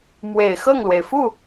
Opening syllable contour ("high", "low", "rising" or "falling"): low